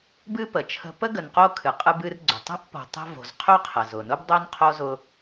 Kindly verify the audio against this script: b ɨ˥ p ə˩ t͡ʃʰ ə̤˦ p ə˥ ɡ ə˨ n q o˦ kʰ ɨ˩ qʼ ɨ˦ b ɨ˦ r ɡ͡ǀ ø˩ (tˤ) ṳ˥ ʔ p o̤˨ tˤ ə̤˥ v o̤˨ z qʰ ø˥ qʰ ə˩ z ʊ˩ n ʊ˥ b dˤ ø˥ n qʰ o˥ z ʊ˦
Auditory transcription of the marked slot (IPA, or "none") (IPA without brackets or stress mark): tˤ